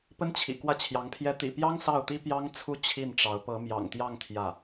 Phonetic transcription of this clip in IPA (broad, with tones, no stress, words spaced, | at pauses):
pə˥nt͡ɕʰḭ˨˩ kwä˥˩t͡ɕʰjɑ˧˥ŋpʰjɛ˥ t̪ḭ˨˩pjɑ˥ŋ sɑ˥˩ʊ̯t̪i˥pjɑ˥ŋt͡sʰu˥ t͡ɕʰi˥˩nʈ͡ʂɑ˧˥ʊ̯ pɤ˧˥mjɑ̰˨˩ŋt̪jɑ˥˧ŋ t̪ʰjä˥˩